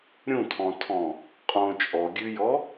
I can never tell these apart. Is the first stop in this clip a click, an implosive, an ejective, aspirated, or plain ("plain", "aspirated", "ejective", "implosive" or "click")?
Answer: aspirated